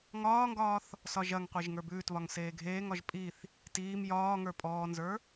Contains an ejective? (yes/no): yes